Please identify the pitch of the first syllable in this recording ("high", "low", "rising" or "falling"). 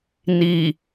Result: low